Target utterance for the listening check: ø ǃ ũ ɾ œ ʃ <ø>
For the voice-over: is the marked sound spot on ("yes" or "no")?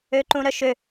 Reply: yes